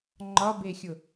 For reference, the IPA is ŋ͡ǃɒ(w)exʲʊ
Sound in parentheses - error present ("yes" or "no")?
yes